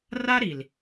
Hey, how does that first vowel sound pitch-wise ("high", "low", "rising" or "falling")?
high